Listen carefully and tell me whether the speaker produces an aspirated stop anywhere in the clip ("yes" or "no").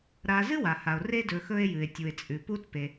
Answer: no